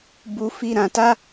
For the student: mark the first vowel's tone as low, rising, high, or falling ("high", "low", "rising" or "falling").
high